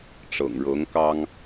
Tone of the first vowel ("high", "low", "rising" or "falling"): low